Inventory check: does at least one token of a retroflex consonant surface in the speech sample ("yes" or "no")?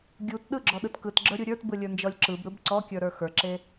no